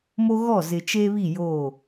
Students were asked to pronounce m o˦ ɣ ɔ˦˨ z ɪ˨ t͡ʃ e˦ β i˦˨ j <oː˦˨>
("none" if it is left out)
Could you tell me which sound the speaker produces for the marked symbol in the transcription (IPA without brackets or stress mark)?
oː˦˨